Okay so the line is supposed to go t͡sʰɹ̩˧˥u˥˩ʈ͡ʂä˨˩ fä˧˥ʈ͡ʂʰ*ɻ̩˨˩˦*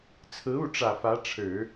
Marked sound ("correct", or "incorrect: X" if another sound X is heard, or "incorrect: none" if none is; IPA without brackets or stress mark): correct